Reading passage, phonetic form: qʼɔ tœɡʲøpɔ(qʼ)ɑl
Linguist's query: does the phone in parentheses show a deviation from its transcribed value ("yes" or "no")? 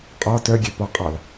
no